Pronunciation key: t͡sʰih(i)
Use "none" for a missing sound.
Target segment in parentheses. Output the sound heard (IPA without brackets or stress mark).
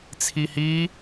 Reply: i